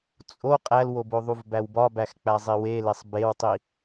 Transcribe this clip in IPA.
t͡sʼo qʼælwoboðˤuv bæwbɒbæx k͡pæzˤiwelesˤ bewtˤi

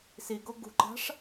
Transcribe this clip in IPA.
siɡo ɡṳǃa̤ʂ

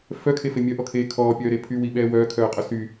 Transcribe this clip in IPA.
fœkʰefe mʲœʔɔkʰeː kʰɔːpʲœːɾe pʰywiɓɛː wœːkʰœːqʼœ sy

